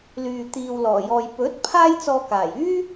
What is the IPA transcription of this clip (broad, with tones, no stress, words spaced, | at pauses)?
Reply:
lyː˨ t̪iː˨wlɔː˨˩jɔː˨j pɵ˨˥t̚ pʰaː˥jt͡sɔː˧kaː˨˩j yː˥